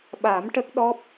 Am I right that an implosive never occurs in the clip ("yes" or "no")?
no